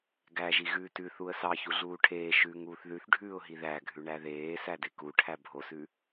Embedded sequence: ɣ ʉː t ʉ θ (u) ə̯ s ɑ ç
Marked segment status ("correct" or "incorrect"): correct